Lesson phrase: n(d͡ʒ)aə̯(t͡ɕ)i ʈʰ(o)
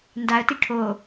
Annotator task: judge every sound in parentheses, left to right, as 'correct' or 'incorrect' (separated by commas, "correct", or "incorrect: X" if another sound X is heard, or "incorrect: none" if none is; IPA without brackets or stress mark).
incorrect: d, incorrect: t, correct